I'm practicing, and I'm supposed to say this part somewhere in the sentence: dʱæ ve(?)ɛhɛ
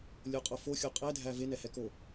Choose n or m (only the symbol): n